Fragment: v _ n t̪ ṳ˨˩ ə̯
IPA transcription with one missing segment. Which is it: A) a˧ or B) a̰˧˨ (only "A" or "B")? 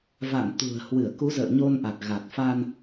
B